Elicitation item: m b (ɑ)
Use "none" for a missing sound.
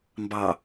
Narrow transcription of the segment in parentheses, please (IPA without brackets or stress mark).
ɑ